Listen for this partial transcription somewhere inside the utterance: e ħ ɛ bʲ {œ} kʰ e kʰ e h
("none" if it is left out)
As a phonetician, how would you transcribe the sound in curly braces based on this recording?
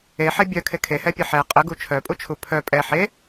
œ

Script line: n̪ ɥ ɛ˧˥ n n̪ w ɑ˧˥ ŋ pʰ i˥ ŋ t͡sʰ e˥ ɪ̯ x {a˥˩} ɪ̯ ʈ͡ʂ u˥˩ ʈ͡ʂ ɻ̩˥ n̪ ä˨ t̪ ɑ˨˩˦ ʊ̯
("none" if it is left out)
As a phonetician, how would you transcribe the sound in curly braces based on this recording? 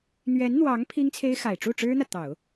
a˨˩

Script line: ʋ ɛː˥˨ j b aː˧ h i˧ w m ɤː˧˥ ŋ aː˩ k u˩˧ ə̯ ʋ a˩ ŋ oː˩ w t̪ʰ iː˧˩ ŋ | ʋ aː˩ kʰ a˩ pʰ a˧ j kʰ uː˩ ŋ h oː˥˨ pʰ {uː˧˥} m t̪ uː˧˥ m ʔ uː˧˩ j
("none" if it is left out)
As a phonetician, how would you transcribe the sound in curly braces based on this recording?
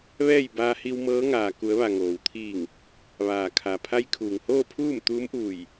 uː˥˨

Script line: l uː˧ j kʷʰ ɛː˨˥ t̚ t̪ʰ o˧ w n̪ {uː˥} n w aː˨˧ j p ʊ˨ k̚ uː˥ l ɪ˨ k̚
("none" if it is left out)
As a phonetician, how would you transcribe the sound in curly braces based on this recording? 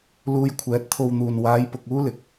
uː˨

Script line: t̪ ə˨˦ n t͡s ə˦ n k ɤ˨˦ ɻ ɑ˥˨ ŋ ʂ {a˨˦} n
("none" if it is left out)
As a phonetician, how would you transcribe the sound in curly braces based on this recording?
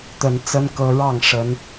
ə˨˦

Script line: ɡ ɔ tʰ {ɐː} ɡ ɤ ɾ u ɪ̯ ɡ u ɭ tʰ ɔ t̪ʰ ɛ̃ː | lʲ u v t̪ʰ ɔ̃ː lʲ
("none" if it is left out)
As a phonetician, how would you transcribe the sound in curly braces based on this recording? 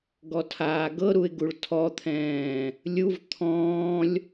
aː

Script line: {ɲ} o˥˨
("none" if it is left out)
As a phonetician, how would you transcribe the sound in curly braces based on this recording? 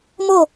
m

